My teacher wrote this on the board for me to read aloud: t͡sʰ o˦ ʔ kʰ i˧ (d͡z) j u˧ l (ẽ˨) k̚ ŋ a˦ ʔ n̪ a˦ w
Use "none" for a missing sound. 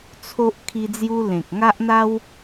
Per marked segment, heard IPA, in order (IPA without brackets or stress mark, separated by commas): d͡z, ẽ˨